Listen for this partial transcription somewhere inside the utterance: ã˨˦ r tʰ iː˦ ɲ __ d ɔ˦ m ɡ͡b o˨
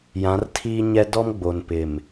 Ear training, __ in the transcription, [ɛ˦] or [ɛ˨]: ɛ˦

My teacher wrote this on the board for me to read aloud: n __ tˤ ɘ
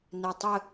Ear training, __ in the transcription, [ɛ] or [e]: ɛ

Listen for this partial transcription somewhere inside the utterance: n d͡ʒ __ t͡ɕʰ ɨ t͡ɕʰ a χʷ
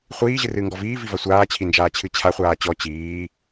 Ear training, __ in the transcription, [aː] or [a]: aː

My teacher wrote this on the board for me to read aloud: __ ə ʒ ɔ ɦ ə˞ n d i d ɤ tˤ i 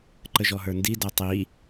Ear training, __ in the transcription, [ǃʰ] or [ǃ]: ǃ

